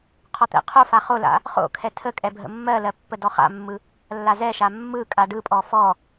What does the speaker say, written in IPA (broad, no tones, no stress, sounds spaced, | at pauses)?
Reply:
qʰ ɔ t̪ ɛ̰ qʰ o f a χ o l a̰ | χ o̰ kʰ ɛ tʰ ə kʼ ɛ bʱ ə̰ mː ɜ l ɜ pː ə d ɔ χ a̰ mː ɯ | lː a z ɛ ʃ a mː ɯ kʼ a ɖ ɯ pʼ ɔ f ɔ